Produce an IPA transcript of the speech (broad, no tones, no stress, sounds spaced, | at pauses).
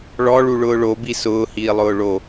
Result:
ɭ ɔ ɭ u ɭ ʊː ɭ o b i s ʊː h iː lˠ ʊː ɭ o